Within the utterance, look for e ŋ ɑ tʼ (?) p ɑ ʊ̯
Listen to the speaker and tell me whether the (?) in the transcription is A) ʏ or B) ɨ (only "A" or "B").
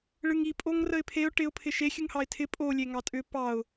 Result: A